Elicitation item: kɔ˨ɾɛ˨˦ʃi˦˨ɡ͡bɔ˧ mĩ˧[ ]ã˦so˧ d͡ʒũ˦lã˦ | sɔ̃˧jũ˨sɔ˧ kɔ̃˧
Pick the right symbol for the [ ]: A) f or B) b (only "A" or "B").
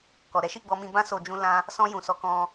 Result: B